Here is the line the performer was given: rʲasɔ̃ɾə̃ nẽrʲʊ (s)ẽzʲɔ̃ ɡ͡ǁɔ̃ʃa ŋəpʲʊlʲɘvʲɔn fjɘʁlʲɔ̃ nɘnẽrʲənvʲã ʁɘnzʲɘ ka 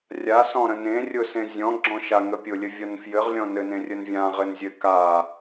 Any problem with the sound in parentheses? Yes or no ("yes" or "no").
no